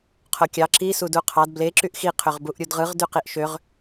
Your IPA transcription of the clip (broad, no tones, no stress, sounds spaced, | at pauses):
qʰ o kʲ ɑ ǁ i s u d u qʰ ɑ d b l e ǁ y ʔ x i qʰ ø ʁ b u ʔ ɾʲ u d ʁ ɯ ʁ d y q i ʔ ʃ ø ʁ